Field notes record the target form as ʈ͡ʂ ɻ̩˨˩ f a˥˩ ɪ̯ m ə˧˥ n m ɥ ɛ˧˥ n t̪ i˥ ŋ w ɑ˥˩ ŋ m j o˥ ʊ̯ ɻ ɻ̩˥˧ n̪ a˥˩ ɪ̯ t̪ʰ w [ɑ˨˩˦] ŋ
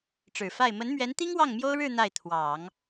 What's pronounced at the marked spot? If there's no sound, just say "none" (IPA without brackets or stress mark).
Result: ɑ˨˩˦